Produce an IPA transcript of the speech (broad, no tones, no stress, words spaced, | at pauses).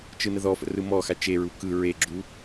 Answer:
t͡ʃɯnəðɔfə̰ rɯmɔxa t͡ʃeɹu kɯ ɹeɡ͡ǁu